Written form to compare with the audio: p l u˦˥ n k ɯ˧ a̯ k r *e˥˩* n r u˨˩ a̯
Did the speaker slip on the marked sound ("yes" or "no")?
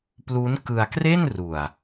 no